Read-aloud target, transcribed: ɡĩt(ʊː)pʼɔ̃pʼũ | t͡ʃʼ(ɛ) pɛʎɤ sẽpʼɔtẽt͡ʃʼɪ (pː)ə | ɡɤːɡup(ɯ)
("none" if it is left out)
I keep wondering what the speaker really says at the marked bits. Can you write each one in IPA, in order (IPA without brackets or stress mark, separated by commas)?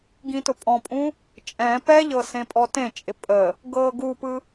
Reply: ʊ, ɛ̃, pʼ, ɯ